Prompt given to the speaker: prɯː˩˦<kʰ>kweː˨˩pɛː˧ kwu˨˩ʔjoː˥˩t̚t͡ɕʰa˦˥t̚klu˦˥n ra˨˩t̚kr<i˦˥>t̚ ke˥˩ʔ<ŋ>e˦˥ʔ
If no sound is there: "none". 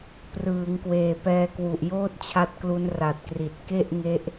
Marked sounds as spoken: ŋ, i˨˩, ŋ

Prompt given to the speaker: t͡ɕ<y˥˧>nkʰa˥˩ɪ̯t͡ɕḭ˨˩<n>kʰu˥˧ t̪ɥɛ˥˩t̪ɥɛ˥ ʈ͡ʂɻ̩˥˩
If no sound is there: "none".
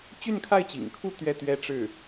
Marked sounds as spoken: y˥˧, ŋ

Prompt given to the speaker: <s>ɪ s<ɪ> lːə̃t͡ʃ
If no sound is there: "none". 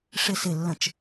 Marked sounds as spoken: ʂ, ɪ

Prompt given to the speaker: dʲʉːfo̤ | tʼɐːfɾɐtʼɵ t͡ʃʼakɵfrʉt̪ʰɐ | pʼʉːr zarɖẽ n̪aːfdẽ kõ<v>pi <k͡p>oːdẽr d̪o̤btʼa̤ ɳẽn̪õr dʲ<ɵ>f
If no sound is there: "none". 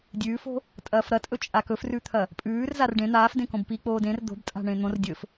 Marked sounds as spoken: b, k͡p, ɵ

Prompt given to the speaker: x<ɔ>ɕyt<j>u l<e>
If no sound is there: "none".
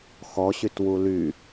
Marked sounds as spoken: ɔ, w, y

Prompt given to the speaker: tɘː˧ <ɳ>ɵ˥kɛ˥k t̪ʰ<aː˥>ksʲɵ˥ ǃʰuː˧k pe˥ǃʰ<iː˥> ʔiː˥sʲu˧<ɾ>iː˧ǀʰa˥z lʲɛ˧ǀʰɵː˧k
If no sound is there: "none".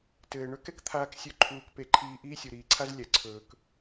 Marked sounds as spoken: ɳ, aː˥, iː˥, ɾ

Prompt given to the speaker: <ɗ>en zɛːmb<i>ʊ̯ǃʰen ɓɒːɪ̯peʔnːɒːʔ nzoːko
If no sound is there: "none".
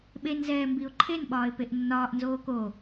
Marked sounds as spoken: ɓ, i

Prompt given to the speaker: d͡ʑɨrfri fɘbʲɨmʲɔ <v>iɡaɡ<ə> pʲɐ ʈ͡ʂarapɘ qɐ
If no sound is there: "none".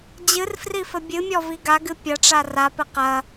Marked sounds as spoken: v, ɨ

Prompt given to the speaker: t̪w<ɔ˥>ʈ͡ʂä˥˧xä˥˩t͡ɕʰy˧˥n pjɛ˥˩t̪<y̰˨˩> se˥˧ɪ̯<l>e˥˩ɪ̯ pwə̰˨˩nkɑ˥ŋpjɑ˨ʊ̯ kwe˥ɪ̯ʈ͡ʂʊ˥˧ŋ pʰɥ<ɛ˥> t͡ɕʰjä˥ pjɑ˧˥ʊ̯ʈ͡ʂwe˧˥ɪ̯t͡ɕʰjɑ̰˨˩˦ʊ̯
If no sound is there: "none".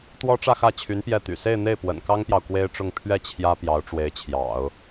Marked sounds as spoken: ɔ˥, y̰˨˩, n̪, ɛ˥˩

